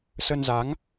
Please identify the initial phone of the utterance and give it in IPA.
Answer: s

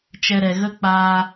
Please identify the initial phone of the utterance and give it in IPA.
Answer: t͡ʃ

